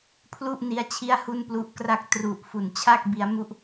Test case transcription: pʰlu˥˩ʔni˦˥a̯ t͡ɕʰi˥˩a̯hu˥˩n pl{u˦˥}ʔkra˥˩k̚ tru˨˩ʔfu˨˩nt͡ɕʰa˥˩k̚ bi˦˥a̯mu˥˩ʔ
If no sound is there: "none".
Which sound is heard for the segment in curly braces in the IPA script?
u˦˥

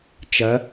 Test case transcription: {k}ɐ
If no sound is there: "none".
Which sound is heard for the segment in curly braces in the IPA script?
t͡ʃ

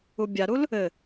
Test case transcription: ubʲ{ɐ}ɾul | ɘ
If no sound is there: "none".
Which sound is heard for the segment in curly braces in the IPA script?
a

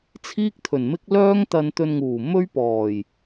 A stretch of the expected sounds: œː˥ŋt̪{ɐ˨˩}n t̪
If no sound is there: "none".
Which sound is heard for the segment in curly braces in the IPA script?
ɐ˧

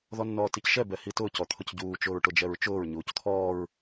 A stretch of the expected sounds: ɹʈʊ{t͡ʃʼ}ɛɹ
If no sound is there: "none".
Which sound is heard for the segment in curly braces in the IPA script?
d͡ʒ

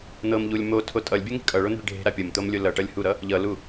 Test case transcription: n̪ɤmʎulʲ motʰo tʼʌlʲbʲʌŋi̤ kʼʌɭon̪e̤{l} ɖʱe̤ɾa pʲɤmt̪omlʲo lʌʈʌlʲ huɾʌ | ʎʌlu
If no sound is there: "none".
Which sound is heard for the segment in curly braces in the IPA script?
ɭ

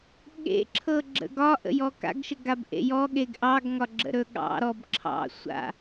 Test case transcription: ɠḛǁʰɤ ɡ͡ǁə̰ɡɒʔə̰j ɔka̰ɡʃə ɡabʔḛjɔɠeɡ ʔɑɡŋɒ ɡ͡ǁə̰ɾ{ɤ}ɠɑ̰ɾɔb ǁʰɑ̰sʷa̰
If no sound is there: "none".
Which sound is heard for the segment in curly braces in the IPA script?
ɵ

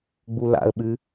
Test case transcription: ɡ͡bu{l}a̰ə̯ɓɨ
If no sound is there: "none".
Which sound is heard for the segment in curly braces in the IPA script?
l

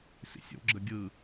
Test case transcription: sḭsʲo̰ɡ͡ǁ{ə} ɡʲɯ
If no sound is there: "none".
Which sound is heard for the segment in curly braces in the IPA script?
ə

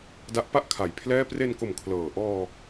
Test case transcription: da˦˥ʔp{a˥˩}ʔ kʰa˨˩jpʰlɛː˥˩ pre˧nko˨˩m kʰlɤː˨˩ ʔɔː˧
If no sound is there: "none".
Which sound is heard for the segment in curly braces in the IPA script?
a˥˩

